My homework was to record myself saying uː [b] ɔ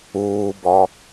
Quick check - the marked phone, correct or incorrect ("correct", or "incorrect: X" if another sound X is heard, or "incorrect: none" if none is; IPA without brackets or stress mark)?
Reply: correct